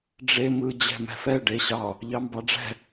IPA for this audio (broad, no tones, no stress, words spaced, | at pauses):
ɖ͡ʐe mɯ d͡ʑɛ̤mɛ̤fɛ ɖeɕɑ | ʎɑmbɑɖ͡ʐɛ̤